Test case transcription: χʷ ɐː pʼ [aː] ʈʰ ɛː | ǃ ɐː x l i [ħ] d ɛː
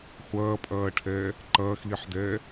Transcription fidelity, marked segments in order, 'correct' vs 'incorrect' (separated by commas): incorrect, correct